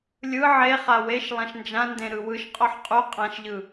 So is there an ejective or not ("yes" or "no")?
yes